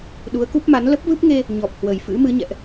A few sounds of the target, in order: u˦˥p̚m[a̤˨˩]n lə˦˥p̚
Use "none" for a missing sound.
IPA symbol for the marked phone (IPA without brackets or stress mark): a˨˦